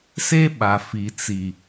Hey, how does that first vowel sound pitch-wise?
high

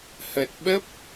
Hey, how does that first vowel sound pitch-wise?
low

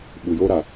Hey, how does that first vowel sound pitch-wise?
low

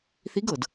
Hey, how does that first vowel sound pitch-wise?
rising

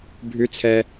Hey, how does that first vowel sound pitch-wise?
high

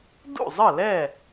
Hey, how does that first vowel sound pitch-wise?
falling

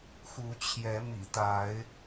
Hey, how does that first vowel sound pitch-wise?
rising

